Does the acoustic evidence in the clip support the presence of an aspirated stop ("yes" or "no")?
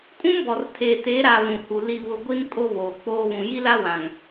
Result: yes